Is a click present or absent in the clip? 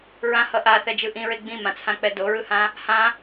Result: absent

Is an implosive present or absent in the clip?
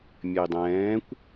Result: absent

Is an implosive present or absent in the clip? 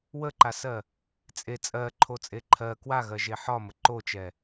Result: absent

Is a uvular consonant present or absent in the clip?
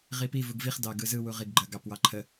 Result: present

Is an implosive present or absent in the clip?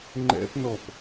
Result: absent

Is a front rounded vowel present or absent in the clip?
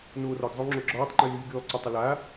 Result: present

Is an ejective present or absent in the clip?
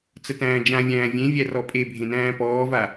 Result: present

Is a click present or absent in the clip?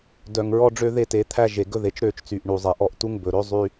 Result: absent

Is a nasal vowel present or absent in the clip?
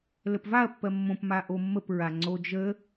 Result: present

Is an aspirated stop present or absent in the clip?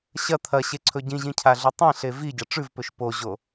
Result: present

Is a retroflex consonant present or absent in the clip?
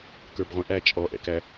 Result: absent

